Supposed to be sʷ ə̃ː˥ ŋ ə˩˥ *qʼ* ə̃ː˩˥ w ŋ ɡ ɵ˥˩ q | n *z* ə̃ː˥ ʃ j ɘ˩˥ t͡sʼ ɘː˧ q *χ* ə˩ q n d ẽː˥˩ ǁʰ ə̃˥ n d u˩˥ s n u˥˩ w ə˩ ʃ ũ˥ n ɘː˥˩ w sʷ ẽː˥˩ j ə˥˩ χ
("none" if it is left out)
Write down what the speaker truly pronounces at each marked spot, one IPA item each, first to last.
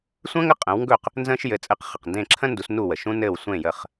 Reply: qʼ, z, χ

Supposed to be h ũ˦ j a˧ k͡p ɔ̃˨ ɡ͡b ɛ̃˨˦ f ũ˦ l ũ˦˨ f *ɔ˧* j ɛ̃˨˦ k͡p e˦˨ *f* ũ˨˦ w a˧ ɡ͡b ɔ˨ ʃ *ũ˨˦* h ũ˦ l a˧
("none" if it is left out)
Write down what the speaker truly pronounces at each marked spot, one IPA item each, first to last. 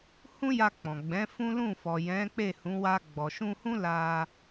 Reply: ɔ˨, h, ũ˧

